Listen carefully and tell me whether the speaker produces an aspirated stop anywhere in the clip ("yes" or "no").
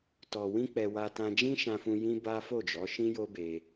no